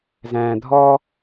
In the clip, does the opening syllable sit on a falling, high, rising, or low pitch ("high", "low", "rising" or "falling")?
low